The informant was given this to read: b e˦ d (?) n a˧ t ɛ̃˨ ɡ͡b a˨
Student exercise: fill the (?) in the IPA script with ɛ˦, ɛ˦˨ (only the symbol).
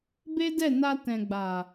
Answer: ɛ˦˨